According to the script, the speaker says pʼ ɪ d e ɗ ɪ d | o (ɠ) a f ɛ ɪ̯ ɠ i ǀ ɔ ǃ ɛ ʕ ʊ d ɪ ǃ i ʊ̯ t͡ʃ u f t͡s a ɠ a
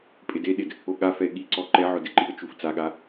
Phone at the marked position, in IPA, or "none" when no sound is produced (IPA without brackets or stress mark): ɠ